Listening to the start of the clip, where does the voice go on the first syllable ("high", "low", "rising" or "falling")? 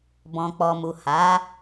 low